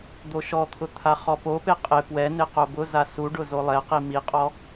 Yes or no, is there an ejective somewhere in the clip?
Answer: yes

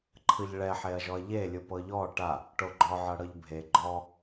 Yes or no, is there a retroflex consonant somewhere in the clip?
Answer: yes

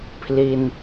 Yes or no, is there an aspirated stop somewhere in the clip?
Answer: yes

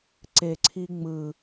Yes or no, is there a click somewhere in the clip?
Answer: yes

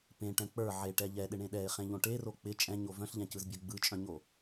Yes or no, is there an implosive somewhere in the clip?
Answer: yes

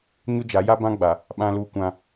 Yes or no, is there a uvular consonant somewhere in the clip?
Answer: no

